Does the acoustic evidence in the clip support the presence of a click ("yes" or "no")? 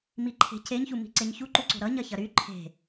yes